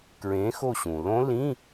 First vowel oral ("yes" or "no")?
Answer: no